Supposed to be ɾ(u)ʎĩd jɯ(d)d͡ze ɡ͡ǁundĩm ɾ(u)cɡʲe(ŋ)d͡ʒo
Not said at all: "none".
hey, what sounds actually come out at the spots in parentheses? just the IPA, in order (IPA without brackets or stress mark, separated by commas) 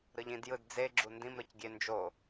ɯ, d, ɯ, n